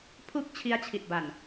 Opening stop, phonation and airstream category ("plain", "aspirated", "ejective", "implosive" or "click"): aspirated